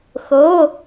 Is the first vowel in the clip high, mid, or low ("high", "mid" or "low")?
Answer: mid